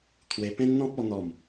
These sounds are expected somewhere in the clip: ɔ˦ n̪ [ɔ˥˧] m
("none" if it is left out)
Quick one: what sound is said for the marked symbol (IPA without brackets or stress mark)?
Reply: ɔ˥˧